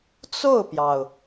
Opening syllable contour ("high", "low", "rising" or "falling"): falling